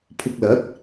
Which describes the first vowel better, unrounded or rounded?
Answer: rounded